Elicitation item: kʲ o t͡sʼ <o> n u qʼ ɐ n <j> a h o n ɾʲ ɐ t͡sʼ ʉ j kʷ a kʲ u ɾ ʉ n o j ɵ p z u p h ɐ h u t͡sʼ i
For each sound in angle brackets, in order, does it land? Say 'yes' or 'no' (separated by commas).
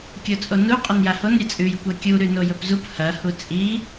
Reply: yes, yes